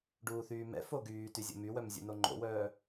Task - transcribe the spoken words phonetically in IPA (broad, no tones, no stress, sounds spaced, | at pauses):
ɖ uː θ yː m ɛ̰ f o ɡ yː t y zʲ o̰ m y w œ m zʲ ṵ n o ŋ͡ǃ o̰ w œː